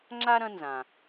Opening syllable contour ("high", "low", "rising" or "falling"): high